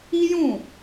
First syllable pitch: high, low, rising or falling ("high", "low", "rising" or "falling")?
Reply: high